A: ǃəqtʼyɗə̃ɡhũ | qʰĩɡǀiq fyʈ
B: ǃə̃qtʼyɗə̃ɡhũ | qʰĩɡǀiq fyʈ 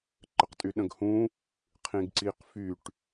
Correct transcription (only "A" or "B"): A